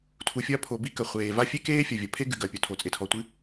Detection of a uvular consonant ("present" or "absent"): present